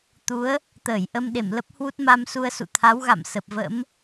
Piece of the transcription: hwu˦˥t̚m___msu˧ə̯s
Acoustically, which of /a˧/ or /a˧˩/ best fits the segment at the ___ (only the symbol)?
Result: a˧